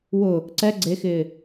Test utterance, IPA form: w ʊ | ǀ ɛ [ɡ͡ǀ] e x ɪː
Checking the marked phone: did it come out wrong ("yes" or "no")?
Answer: no